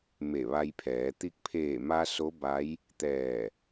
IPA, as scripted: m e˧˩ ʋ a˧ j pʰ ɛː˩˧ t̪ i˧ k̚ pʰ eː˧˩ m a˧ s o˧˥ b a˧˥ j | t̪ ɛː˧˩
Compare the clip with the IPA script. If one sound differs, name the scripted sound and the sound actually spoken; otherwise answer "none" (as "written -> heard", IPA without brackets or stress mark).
none